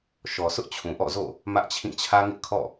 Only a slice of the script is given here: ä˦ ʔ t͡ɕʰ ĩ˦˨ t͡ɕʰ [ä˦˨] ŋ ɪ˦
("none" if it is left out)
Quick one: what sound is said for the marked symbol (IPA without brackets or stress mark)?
ä˦